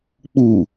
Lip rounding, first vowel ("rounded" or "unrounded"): rounded